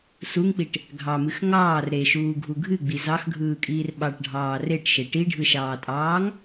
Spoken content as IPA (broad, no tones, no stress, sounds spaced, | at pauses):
s u ŋ k͡p i ʈ | ɡʱ ɑ m ɨ x ŋ ɑː r ɾ e ʃ uː ɡʱ u ɡʱ ɨ ɡ͡b i z ɑ x ɡʱ ɯː kʼ iː r ɓ ɑ ʈ ɖʱ ɑː r e ʈ ʃ e ʈ i ɖʱ ɯ ʃ ɑː tʼ ɑː ŋ